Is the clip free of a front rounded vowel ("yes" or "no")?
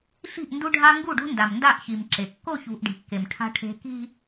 yes